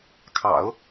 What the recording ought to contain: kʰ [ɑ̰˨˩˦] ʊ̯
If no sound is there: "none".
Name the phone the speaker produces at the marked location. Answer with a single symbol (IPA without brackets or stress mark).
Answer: ɑ̰˨˩˦